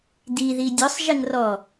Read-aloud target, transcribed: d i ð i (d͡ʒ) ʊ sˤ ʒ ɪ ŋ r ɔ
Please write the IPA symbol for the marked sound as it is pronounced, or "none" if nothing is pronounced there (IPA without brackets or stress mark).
dʲ